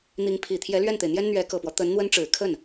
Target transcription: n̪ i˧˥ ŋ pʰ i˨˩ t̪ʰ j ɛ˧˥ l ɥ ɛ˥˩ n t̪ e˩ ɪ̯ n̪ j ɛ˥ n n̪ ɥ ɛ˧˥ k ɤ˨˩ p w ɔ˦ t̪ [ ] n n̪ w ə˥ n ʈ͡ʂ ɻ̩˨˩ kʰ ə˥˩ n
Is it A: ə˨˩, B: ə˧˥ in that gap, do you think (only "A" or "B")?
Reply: B